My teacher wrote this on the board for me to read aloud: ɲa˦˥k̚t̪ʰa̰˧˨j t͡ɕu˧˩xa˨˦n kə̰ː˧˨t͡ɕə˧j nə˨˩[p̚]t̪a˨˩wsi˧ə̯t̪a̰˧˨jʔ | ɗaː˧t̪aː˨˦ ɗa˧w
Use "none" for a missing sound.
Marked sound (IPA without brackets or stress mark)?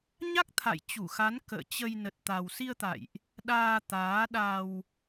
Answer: t̚